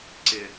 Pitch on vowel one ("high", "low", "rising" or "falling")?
low